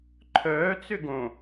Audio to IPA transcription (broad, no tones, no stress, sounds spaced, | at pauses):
ǃʰ œː t͡s ʏ ɡ õ